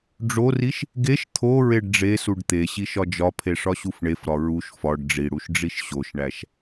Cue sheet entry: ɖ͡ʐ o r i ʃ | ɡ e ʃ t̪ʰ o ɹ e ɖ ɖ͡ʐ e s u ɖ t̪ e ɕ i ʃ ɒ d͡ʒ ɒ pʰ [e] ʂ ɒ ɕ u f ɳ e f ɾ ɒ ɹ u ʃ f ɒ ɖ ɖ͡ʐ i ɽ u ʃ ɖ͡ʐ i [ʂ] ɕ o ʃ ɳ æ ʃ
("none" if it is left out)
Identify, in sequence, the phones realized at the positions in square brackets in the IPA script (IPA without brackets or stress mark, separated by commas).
e, ʃ